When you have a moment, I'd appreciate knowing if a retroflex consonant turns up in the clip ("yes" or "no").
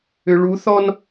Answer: yes